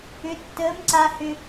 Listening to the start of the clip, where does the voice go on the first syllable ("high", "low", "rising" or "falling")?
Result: rising